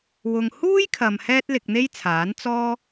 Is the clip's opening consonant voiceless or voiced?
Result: voiced